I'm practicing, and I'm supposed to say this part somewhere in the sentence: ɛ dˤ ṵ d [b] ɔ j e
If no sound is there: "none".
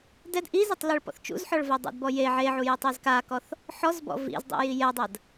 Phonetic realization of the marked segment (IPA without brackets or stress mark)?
b